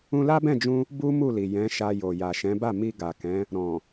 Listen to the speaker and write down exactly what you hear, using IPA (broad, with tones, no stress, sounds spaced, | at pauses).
ũ˧ l a˦ b ɛ̃˦˨ d͡ʒ ũ˧ | b u˦ m u˦˨ l i˨ j ɛ̃˨˦ ʃ a˧ j o˨ j a˨ ʃ ɛ̃˨˦ b a˦˨ m i˧ ɡ a˨ k ɛ̃˨˦ | ɾ ɔ̃˨